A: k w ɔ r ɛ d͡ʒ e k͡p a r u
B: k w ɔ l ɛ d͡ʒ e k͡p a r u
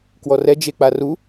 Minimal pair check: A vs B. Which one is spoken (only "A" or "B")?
A